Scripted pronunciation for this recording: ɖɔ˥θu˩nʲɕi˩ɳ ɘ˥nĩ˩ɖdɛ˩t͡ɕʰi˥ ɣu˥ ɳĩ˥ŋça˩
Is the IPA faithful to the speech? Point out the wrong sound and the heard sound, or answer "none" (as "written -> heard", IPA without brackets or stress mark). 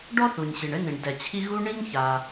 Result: none